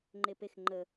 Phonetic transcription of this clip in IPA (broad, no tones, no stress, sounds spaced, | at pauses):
ŋ͡ǃ e p e x ŋ͡ǃ ə